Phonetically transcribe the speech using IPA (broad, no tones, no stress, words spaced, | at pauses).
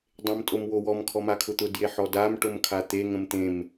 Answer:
dˤẽmtʼomwowɔm kʰɔmakʰʊt̪ʊ djeħɔdam ʈomkʰat̪e ŋə̃mt̪ẽm